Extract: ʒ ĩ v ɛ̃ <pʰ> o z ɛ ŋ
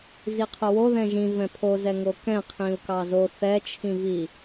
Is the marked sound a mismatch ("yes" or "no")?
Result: no